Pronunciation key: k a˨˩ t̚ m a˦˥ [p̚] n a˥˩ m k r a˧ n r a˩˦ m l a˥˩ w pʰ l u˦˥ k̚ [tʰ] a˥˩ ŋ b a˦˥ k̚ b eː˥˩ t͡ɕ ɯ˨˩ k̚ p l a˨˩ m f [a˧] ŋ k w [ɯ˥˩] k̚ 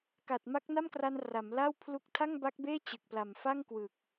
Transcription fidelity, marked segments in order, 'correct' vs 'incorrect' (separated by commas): incorrect, correct, incorrect, incorrect